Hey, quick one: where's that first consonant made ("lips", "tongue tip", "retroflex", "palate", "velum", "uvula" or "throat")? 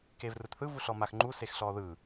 velum